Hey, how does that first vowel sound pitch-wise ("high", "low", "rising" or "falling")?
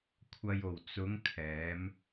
low